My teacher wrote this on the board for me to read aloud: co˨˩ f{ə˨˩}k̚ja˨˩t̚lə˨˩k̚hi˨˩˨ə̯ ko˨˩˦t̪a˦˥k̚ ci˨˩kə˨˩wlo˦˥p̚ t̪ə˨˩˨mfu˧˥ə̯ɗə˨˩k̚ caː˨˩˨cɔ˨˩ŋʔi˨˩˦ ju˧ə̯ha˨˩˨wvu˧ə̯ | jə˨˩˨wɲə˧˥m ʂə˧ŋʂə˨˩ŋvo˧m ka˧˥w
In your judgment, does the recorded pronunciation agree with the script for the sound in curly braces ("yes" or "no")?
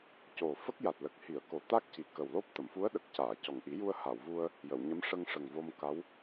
no